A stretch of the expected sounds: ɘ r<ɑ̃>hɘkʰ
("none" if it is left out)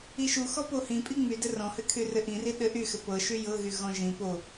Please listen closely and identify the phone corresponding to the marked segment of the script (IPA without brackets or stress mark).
ɔ̃